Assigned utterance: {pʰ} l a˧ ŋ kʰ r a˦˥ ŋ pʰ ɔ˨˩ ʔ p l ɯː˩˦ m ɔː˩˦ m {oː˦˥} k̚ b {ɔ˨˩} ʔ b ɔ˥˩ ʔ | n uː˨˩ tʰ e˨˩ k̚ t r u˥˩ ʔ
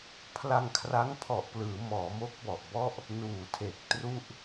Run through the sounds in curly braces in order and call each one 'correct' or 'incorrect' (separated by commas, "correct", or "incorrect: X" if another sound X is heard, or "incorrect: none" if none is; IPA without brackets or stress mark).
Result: correct, incorrect: o˦˥, correct